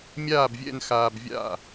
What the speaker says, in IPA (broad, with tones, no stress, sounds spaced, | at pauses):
mʲ aː˥˧ b vʲ ɛ̰˥˧ n x aː˧ b vʲ a̰˥˧